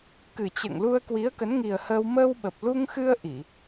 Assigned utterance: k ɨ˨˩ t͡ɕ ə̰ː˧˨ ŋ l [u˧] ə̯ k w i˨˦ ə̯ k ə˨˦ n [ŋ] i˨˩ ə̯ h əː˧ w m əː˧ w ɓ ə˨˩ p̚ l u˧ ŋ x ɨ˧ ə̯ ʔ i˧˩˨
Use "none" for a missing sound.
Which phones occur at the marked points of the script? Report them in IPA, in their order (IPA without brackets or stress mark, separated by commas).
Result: u˧, ŋ